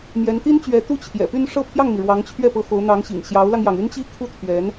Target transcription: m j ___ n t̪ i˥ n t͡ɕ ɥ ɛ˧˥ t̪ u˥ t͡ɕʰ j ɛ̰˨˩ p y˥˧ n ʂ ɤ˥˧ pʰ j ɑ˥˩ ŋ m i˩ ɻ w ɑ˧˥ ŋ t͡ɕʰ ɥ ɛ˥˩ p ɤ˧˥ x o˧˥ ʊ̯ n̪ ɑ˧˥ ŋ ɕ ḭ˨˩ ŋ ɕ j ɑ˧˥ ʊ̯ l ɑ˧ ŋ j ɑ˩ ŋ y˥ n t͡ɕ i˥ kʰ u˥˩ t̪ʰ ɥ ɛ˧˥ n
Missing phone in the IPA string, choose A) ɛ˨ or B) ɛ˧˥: B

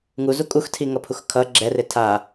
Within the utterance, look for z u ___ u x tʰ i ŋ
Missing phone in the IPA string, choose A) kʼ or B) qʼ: A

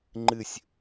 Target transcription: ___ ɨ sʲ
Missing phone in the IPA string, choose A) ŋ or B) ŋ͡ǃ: B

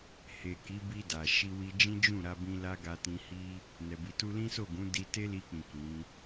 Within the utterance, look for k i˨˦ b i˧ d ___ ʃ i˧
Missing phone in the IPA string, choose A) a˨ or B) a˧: A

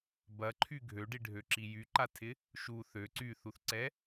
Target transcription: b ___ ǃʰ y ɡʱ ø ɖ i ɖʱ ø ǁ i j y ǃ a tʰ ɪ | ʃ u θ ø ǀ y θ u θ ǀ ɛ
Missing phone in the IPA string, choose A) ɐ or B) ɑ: A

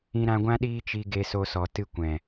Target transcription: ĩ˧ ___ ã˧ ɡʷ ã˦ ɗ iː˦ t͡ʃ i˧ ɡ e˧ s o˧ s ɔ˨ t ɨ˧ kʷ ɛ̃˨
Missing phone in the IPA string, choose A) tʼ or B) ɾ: B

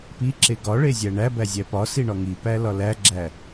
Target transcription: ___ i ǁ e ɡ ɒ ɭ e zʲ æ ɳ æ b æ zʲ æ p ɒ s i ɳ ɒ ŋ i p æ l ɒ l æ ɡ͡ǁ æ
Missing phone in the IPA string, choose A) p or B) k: A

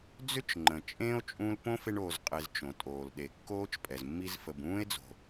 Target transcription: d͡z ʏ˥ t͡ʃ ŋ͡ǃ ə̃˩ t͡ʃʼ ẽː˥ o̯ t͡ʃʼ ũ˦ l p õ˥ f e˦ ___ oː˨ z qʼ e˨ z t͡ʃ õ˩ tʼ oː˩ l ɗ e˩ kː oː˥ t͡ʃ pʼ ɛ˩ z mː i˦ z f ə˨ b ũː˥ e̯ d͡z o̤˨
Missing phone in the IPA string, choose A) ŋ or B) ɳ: B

